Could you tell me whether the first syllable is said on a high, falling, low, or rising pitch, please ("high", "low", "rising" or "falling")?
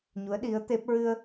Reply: rising